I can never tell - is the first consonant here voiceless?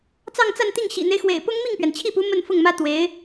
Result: yes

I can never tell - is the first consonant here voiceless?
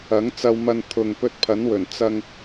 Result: no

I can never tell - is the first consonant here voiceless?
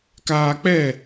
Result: yes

